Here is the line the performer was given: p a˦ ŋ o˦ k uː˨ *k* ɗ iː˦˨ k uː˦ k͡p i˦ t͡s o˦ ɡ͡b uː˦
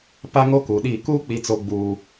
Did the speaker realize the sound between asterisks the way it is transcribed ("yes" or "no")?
no